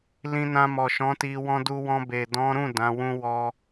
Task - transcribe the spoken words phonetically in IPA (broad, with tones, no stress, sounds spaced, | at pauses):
l ĩ˧ n ã˧ m ɔ˨ ʃ ɔ̃˨˦ t i˧ w ɔ̃˧ d u˧ w ɔ̃˧ b e˨ d ɔ̃˨˦ ɾ ũ˦˨ d ã˨˦ w ũ˦ w ɔ˦